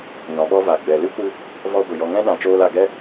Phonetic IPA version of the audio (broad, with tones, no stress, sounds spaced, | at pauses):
ɲ ɔ̃˨ ɓ ɔ˦ v a˨ ɡ͡b ɛ˨ l ɨ˦ kʷ ɨ˧ | v ɔ˧ ɡʷ ɨ˨ j ɔ˧ ŋ ɛ̃˦ ɗ ã˨ t͡ʃ oː˧ l a˨ ɡ ɛ˦